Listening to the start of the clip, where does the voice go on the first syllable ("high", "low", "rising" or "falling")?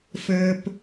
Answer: low